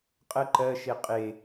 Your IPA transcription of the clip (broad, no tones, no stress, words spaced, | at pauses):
qʼə ǃɜʃe qʼe